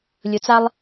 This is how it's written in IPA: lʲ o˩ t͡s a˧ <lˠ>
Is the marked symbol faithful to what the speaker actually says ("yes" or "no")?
yes